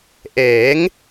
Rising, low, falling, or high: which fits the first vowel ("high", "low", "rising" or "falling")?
rising